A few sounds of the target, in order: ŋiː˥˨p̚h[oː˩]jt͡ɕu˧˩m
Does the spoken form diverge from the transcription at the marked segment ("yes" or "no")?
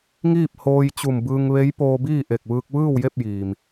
yes